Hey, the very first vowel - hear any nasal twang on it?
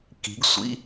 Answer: no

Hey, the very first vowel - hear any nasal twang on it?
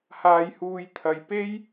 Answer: no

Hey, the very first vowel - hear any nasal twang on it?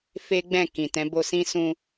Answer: no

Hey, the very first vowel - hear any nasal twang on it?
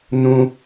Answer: yes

